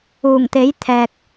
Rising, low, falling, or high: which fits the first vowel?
low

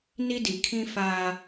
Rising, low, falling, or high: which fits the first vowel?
high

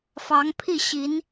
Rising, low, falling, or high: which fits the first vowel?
rising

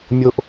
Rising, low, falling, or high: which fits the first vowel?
high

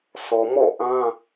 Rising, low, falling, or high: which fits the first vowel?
low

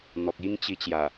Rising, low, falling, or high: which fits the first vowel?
low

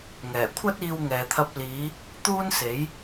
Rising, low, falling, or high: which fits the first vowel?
low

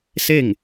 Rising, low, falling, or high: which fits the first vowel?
falling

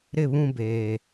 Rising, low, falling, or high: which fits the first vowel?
falling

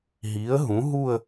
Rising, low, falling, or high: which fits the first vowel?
rising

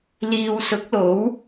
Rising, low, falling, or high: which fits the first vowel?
low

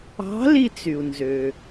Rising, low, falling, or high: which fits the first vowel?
rising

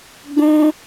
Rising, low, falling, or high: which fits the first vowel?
high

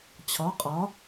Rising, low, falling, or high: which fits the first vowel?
rising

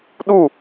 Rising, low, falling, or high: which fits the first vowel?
falling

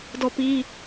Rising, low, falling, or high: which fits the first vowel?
falling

